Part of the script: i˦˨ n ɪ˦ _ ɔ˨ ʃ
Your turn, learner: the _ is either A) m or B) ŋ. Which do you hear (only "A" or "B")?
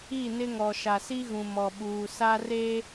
B